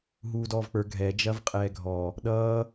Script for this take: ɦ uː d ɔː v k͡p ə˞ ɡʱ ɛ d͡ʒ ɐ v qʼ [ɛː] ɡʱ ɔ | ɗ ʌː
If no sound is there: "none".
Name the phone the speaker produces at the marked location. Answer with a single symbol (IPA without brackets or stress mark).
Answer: ɛː